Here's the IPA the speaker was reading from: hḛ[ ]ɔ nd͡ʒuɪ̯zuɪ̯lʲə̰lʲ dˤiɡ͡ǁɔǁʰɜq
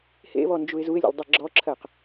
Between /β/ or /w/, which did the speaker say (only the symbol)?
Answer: β